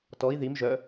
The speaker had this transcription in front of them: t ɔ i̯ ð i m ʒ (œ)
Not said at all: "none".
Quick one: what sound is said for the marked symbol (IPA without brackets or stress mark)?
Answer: œ